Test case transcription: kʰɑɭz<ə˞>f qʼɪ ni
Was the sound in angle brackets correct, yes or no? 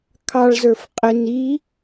yes